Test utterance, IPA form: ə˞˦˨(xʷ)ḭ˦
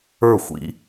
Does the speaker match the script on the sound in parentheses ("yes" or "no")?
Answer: yes